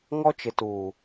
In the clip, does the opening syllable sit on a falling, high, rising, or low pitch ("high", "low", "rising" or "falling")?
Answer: high